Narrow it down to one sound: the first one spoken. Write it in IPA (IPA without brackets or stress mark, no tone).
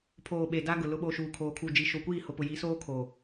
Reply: pʰ